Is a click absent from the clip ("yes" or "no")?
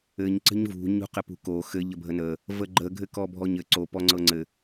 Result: no